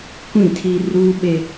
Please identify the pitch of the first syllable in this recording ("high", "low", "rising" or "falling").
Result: falling